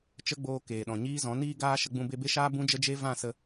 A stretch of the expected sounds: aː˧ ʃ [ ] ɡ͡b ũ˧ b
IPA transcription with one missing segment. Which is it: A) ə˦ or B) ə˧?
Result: B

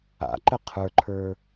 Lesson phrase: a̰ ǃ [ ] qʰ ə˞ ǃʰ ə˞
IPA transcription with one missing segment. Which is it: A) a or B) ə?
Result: B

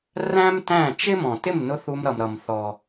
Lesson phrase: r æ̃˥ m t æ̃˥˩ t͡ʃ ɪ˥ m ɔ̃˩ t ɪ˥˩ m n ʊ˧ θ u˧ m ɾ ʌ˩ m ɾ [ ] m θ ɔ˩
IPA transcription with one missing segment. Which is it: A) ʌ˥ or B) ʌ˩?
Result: B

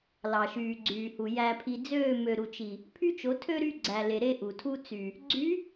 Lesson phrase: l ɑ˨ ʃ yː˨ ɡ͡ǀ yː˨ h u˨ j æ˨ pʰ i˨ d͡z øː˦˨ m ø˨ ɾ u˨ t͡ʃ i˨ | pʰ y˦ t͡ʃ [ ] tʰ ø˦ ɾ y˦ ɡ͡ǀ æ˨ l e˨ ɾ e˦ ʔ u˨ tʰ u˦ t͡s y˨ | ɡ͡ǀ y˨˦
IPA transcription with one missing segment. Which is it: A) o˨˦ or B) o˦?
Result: A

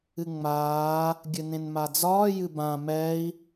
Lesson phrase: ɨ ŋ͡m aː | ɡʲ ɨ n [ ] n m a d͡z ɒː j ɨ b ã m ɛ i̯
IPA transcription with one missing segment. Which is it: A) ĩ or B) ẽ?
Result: B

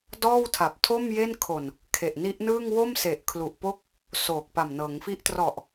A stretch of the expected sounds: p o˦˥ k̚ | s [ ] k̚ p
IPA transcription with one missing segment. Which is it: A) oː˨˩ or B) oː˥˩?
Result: A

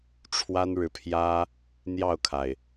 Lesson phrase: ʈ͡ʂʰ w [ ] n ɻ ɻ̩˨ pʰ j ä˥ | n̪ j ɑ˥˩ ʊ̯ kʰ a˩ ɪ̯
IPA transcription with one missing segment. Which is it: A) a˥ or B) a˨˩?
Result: A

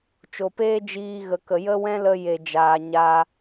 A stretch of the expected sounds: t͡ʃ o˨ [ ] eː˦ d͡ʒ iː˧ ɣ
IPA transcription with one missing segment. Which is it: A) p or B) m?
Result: A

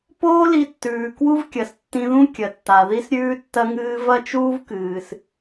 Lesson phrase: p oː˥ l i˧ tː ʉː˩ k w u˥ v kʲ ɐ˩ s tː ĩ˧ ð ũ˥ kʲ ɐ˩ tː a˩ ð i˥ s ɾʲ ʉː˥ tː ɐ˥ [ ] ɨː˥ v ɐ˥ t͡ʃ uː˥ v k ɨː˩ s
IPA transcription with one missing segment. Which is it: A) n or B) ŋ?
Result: B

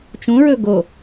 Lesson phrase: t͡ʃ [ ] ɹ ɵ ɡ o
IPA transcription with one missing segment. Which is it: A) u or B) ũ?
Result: B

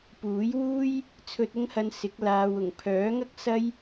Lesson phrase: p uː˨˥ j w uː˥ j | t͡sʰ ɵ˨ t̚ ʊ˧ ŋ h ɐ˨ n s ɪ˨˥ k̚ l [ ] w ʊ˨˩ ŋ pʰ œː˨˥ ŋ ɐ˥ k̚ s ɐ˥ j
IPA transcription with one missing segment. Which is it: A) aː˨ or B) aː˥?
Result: A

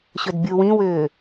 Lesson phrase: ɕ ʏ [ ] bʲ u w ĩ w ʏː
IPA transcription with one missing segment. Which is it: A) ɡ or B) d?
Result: B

